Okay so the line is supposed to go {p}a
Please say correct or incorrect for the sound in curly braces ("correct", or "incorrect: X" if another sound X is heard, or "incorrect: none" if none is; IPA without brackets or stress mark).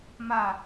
incorrect: m